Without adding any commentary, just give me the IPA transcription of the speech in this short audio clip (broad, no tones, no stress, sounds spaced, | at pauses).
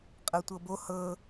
qʼ ɤ tʷ ɤ b o h ɤ